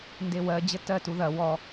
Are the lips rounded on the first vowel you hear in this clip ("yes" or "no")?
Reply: no